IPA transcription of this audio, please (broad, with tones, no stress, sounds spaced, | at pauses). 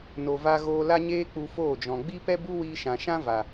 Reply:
n o˨ v a˧ ɣ oː˧ l a˦ ɲ eː˦ k͡p u˧ f oː˦˨ d͡ʒ ɔ̃˨ ɡ͡b i˦ p ɛ˦ b u˦ w iː˧ ʃ ã˨ ʃ ã˦ v a˨